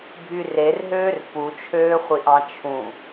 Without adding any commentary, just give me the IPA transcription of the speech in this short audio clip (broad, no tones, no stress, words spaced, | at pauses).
bʱyrerɦøːr put͡ʃʰøːχʷiʔɑ̃ t͡ʃʰũ